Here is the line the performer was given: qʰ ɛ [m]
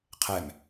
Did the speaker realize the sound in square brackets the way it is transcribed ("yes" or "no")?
yes